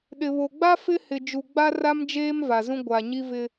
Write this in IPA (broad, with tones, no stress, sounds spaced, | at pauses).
ɗ ɪ˨ β o˨ ɡ͡b a˦ f ɪ˦ h ɪ˨ d͡ʒ u˨ ɡ͡b a˦ r a˦ m d͡ʒ eː˦ m v a˨ z ũ˦ ɡʷ a˨ ɲ i˦ v ɪ˦